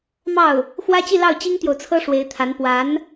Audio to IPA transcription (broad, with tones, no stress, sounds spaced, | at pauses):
m ɑ˥˩ ʊ̯ | x w ä˥ t͡ɕ i˥˧ l ɑ˥˩ ʊ̯ t͡ɕ i˥ ŋ t̪ j o˨ ʊ̯ t͡sʰ ɤ˥ ʂ w e˧˥ ɪ̯ t̪ʰ a˧˥ n p w a˧˥ n